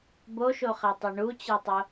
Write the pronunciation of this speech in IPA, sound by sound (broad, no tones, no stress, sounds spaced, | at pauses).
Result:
b o ʃ o χ ɛ tˤ ɛ ɳ u t͡ɕ ɛ tˤ o